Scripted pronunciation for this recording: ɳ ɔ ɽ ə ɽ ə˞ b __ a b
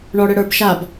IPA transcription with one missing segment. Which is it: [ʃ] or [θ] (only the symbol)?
ʃ